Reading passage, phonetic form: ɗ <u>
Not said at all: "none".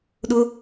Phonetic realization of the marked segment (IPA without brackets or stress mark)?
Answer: ʊ